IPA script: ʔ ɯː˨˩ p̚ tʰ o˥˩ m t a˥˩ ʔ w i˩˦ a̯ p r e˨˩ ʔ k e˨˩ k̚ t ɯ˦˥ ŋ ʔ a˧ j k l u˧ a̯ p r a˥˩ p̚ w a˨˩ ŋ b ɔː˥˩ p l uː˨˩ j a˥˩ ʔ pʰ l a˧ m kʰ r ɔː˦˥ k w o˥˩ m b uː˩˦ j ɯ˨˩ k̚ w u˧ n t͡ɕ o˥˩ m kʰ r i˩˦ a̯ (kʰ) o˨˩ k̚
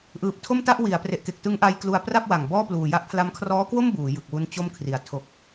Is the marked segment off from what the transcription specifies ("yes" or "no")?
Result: yes